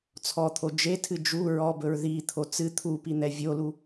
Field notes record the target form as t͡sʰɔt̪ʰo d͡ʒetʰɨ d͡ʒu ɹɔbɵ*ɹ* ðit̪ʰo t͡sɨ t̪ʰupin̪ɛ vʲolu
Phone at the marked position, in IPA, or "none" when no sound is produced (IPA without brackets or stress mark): ɹ